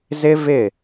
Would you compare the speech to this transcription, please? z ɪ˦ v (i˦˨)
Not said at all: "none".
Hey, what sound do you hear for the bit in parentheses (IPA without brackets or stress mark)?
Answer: ɪ˦˨